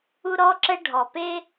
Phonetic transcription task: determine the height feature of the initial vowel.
high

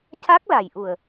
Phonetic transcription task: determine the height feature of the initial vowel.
low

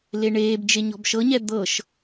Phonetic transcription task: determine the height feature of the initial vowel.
mid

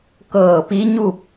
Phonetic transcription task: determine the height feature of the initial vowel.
mid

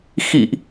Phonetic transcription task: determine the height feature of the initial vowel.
high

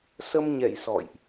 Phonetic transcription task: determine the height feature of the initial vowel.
mid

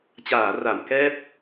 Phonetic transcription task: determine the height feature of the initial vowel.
low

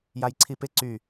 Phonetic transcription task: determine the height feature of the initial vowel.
low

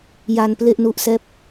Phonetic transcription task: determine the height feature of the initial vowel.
low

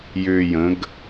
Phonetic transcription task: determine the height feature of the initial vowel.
high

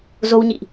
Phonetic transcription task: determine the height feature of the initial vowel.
mid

